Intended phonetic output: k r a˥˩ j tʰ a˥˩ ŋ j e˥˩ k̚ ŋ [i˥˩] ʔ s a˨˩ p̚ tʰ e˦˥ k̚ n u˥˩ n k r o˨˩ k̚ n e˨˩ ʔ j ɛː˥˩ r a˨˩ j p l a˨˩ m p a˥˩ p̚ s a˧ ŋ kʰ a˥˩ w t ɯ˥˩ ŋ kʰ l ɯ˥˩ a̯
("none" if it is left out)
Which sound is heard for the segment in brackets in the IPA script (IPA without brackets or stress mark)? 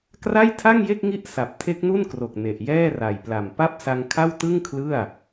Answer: i˥˩